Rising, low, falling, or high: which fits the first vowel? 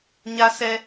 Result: high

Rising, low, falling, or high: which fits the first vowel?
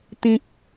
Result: high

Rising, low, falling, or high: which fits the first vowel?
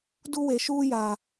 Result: high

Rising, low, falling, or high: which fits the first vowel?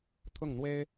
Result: falling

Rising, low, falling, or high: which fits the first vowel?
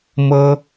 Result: high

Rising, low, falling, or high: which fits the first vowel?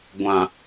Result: low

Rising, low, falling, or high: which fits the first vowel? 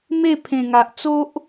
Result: falling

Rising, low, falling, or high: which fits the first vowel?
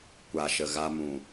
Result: low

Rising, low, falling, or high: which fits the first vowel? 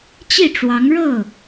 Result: falling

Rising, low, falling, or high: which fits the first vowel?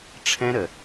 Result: high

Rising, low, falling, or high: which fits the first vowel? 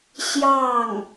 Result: falling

